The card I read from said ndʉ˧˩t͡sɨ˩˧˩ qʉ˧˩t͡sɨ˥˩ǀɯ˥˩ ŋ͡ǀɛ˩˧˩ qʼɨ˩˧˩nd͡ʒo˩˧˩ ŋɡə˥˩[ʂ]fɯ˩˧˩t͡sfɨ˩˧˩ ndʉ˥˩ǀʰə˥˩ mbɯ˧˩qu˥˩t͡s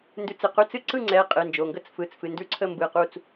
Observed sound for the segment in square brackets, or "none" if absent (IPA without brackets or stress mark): t͡s